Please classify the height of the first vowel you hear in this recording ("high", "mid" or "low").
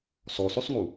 mid